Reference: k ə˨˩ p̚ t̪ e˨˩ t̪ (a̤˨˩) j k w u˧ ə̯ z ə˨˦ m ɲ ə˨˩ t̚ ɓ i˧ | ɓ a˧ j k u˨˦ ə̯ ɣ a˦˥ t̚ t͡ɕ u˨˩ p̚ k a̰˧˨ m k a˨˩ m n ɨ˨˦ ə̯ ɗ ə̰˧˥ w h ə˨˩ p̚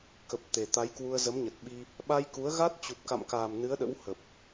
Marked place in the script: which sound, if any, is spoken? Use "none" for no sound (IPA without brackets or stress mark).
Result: a˨˦